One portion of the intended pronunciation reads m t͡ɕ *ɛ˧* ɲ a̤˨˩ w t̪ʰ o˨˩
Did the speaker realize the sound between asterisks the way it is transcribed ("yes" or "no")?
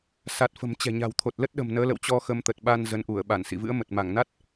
no